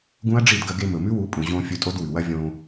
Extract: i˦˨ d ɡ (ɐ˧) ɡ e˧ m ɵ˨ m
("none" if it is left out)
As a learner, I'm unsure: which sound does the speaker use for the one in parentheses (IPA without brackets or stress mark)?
ɐ˧